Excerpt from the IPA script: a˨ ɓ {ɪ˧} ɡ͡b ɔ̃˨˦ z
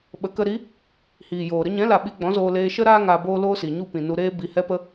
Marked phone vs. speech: incorrect: i˧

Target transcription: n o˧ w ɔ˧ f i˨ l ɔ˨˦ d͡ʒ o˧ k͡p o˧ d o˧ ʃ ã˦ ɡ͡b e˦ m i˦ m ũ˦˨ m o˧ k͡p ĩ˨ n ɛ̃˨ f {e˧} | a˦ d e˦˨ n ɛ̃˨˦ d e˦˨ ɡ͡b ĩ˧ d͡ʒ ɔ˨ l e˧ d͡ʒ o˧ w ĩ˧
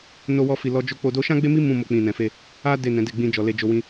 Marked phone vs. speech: correct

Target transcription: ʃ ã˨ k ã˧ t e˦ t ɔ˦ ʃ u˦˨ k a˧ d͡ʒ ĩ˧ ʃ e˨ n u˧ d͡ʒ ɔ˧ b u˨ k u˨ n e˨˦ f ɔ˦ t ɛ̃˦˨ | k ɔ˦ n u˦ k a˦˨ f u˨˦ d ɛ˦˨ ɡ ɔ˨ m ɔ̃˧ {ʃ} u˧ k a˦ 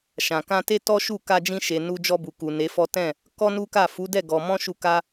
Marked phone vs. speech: correct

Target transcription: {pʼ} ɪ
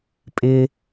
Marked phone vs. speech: correct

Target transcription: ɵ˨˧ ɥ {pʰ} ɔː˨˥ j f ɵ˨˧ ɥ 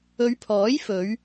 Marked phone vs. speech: correct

